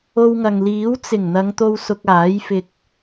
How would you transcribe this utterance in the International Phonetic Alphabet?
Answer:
o˧ w ŋ ɐ˨ ŋ l iː˨˥ w t͡s ɪ˨˩ ŋ n̪ ɐ˨˧ ŋ t̪ o˧ w s ʊ˧ k̚ aː˨˥ j f ɪ˧ k̚

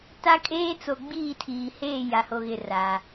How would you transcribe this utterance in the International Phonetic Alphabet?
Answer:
t a˦ kʼ eː˦ t͡s o˨ ɡ͡b iː˦˨ tʰ iː˨ h eː˦˨ j a˨ h o˨ ɣ ɪ˨ r a˨

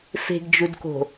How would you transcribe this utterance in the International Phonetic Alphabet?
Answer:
f e̤ ɡ d͡ʒ u d k o̤

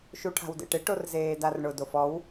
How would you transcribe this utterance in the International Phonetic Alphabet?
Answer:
ʃ u ʈʰ a̤ w d ḛ ʈ ɪ ʈ o r z eː d a r ɳ ʊ d o f ɔ w

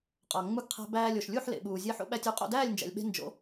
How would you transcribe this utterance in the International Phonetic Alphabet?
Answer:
qʼ ɒ˩ ŋ͡m u˧ ɡ qʰ æ̤˧ b æː˧ lʲ o˩ ʃ lʲ u˥˩ ħ l ḛ˩ ɓ uː˩ zʲ e˧ ħ o̰˥˩ ɓ æ˧ tʲ u˩˥ qʼ o̰˥˩ d æː˥˩ lʲ n d͡ʒ æ̰˩ lʲ ɓ e̤˧ n d͡ʒ o̰˩˥

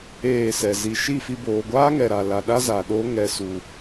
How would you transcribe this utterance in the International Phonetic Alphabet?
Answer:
eː˦˨ s ɛ˨ z i˨ ʃ i˦˨ f i˧ b oː˨ ɡʷ aː˦ ŋ ɛ˨ ɾ a˨ l a˨ ɗ a˦ z a˨ ɗ oː˦ ŋ ɛ˨ s u˨

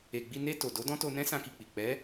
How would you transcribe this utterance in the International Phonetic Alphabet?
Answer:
e˨ ɡ͡b i˧ n e˧ t o˨ d o˨˦ d ɔ̃˦ t o˧ n ɛ̃˦ s ã˧ k i˨ k͡p i˨ k͡p ɛ˨˦

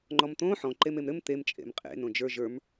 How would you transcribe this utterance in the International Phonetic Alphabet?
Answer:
ŋ͡ǃ ɔ m t̪ õ ħ ɔ̃ ǃ e m e m ɾ ɘ m t̪ e m t͡ʃʼ ḛ m qʼ ḛ n õ d͡ʒ ə˞ ʒ ə˞ m

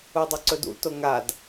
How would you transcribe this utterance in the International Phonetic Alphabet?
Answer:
u dˤ ɵ ǀ ɵ d ṵ t o ŋ a d

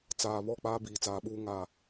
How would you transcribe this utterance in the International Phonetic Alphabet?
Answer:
t͡s aː˨ β ɔ˦˨ k͡p aː˦ b iː˨ t͡s aː˨ ɓ uː˦ ŋ a˦˨

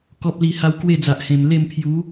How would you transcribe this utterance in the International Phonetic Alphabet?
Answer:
k ɔ˨ p̚ l i˨˩ h a˧ w k w e˥˧ d͡z a˨ ʔ h ẽ˨˩ m l e˥˧ m pʰ j u˨˦

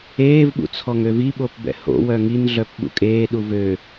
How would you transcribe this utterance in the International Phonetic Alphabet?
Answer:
eː v ɓ ṵ t͡sʰ ɔ ŋ ø v i ɓ o p b ɛ̰ h o̰ w œ ŋ i n ɮ œ p ɓ ṵ kʼ eː ɗ u v ø

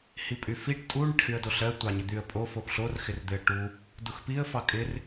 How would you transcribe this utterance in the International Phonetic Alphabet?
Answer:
h i pʼ y f i ʈ tʼ u ɳ ɪ ʈ x y ə̯ d o ɬ ɜ tʷ ɑ ɲ ɪ d̪ y ə̯ pʼ o f o p ɬ o r x ɪ r d̪ ɪ ə̯ ʈ u | d u x p i ə̯ f ɑ kʼ ɪ r

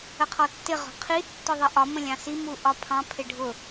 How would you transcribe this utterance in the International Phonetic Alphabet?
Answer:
ə qʰ ɔ tː ɪ ʁ ɔ̤ qʰ i tː ʊ ðˤ ɪ ʔ ɒ m ə̃ lʲ ɑ̃ s i m u ʔ ɒ pʰ ɑ̃ pʰ ɪ ɖʱ ʊ

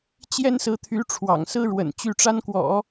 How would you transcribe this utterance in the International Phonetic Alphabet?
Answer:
t͡ɕ j ɛ˥ n s ɹ̩˧˥ t̪ʰ y˧˥ ʈ͡ʂʰ w ɑ̰˨˩ ŋ s ɹ̩˥ ɻ w ə̰˨˩ n t͡ɕ y˥˩ ʈ͡ʂ a˥ n k w ɔ̰˨˩˦

